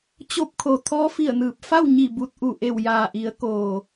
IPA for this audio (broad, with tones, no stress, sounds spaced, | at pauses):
t͡ɕ o˧ p̚ kʰ o˩ t̪ʰ ɔː˧˥ f i˧˩ ə̯ n ɯː˧˩ p̚ f a˥˨ w ɲ i˧˩ b u˧ t̚ ʔ u˧˩ ʔ e˧˩ w j aː˩ ʔ i˩˧ ə̯ k oː˩